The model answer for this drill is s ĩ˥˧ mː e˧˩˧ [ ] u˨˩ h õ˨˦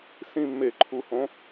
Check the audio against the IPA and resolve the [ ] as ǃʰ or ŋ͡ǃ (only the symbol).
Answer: ǃʰ